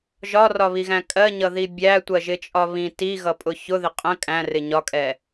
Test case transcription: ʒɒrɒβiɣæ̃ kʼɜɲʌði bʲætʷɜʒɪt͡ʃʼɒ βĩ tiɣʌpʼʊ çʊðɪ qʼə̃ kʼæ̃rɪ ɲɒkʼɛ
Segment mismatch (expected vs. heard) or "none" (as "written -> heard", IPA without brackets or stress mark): none